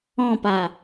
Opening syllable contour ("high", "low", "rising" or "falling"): falling